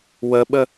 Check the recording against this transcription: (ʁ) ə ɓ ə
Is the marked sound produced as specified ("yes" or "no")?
no